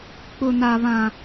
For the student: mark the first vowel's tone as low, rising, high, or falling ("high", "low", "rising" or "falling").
high